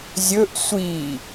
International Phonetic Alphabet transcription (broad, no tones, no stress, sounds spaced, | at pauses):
zʲ ɵ ʔ sʷ i